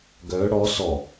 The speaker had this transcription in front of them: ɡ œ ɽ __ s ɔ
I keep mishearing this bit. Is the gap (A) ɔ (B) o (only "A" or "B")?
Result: A